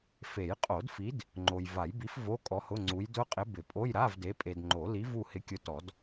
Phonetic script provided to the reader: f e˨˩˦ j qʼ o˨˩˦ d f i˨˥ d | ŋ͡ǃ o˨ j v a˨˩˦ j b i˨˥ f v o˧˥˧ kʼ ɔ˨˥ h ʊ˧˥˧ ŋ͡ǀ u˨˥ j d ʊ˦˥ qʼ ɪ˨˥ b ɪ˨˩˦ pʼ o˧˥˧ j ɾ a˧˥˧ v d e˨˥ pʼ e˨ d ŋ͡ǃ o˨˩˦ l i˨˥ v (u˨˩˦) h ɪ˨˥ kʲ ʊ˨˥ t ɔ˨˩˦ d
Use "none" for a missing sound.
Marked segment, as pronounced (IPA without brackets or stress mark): u˦˨